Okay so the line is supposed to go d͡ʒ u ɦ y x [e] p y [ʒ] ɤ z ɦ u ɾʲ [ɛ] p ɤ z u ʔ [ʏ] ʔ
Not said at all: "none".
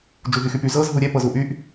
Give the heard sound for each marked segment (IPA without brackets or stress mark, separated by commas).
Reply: y, z, ɛ, y